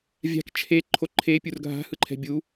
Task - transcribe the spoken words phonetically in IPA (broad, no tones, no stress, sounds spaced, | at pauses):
vʲ a̤ k t͡ʃʰ e ǃʰ o ǃʰ e pʲ u r ɡʱ a̤ h ɯ ǃʰ ɛ̤ bʲ u